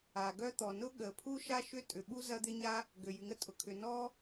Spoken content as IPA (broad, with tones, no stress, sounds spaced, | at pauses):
a˩ ɡ œ˥ t̪ ɔ˩ n ʊ˥ ɠ ə˩ pʰ u˥ ʃ a˥ ʃ ʏ˥ tʼ ʏ˩ ɓ u˥ z ɐ˥ d̪ ɪ˥ ɲ a˥ | ɡ ø˩ j y˩ ŋ ə˥ tʼ ʊ˩ kʰ ʏ˩ n ɔ˥